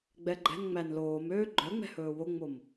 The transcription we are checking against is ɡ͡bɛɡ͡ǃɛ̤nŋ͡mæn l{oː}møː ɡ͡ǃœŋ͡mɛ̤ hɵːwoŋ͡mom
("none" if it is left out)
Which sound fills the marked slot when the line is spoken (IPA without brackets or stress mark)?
oː